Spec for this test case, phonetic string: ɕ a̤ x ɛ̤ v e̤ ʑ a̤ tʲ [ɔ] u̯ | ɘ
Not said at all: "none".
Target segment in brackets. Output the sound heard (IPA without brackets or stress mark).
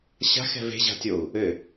o